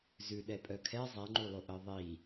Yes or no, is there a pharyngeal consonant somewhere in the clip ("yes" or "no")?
no